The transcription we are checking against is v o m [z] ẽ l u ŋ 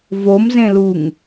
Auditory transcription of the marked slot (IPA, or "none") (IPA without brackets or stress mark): z